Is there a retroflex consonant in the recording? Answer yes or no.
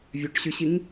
yes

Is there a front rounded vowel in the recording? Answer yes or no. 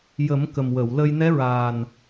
no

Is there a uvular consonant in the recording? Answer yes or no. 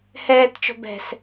no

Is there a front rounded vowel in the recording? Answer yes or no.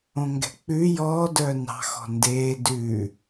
yes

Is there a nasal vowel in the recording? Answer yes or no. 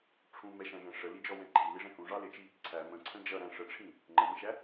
yes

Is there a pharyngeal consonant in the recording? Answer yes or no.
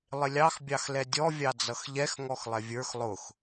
no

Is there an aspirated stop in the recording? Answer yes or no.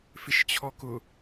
yes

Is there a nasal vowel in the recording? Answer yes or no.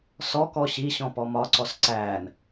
yes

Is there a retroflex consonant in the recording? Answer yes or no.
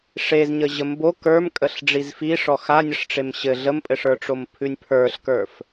yes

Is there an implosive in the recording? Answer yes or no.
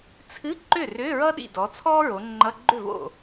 yes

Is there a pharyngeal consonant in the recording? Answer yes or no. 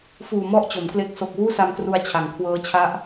no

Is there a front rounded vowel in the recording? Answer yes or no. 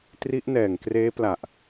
no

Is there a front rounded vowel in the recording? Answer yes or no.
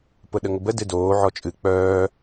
yes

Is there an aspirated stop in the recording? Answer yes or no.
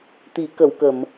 no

